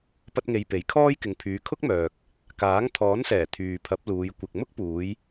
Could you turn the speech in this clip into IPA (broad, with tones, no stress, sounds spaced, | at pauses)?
p ɐ˥ t̚ ŋ e˧ j p e˨˥ j kʰ ɔː˥ j k ɪ˨ ŋ pʰ yː˨˧ kʰ ʊ˥ k̚ m œː˨ k̚ | k aː˨˥ ŋ t̪ʰ ɔː˨˥ n s ɛː˨˩ t̪ʰ yː˨ pʰ ɐ˨˥ p̚ l uː˨˧ j kʷ ɪ˨ k̚ m ʊ˥ k̚ p uː˨˧ j